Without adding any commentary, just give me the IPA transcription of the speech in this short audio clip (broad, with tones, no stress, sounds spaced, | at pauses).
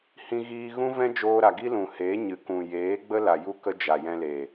h ĩ˧ ɣ iː˧ ɣ ũ˦ v ɛ̃˦ d͡ʒ oː˧ ɾ a˨ ɡ i˦ l ũ˨ h e˨˦ ɲ ɨ˨ k ũ˨ j eː˨˦ ɡ͡b ə˦ l a˨ j u˦ k ə˦ d͡ʒ a˨ j ɛ̃˧ l e˨